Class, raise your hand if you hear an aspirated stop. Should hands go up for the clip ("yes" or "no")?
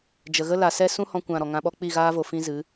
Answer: no